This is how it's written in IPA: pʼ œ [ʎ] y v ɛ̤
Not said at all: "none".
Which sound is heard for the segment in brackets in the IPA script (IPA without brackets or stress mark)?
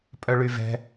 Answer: ɭ